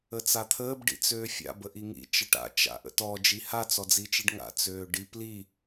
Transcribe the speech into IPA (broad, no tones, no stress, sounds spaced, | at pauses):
ə t͡s a t̪ʰ əː b ɖ ḭ t͡s øː fʲ a̰ b ə ʔ i ŋ ḭ t͡ʃ ə ʈ a̰ t͡ʃ a̰ ʔ ə̰ t ɔ d͡ʒ i h a t͡s ɔ d͡z i t͡ʃ i ɖ ŋ a̰ t͡s øː ɖ i p l i